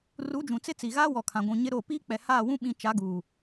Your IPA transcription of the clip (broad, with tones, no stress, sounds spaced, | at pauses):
r u˨˦ d͡ʒ ũ˨ t͡s ɪ˦ t͡s i˨ ɣ aː˦ w ɔ˨ kʰ ã˨ ɡʷ ũ˨ ɲ ɪ˦ ɾ o˦˨ p iː˦ k͡p ɛ˨ h aː˦˨ w ũ˦ ɓ ĩ˦ t͡ʃ a˨˦ ɡ uː˨